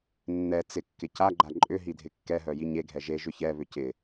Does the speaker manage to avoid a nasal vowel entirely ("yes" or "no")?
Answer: yes